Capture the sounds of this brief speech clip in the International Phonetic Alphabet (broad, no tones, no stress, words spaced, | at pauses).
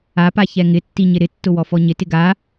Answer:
apa çɛŋɪtːi ɲɪɾɪtːʊ wɔfɔɲɪtɪ ɡa